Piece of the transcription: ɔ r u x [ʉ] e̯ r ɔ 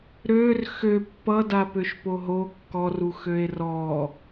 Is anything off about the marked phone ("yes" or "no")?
yes